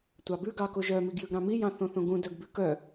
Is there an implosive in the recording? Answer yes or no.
no